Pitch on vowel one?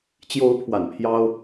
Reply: rising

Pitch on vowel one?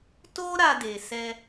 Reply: high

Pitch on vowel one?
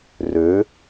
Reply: rising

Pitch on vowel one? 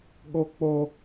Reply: high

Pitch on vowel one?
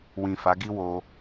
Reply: low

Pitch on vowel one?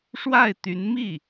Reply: falling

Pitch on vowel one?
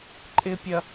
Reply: low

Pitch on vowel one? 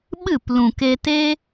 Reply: falling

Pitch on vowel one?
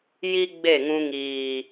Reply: high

